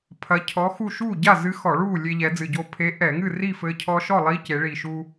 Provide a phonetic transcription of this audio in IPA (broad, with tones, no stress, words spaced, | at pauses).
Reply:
pʰɐ˧˥cʰɔ˧˥xu˥˨ ʃuː˥˨ɟa˥˨zɨ˧˥ xɔ˧˩˧ɭuː˥˨ lʲe˧ʎɛ˩˧d͡zɨ˨˩ɟoː˧ pʰe˧˥ ʔɛ˧˩˧ŋɨ˥˨ri˥˨fɘː˧ cʰɔ˧ʃɔ˥˨ lˠi˧˥ce˩˧ɭi˨˩ʃu˧